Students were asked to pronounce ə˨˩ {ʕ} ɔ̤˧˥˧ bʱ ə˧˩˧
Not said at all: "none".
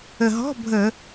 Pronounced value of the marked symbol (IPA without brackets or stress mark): ɦ